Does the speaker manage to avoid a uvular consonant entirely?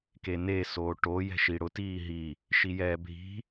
yes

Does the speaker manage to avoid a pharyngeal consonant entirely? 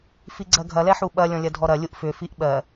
no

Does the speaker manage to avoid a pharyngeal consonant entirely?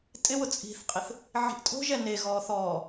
no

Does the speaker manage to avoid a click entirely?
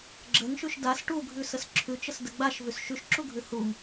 no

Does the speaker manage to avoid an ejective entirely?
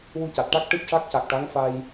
yes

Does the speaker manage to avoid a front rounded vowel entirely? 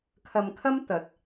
yes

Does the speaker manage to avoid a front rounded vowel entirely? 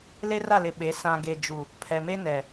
yes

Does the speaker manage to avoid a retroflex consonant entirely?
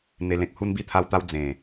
yes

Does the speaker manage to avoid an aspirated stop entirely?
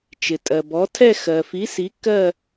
no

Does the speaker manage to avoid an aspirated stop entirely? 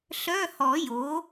yes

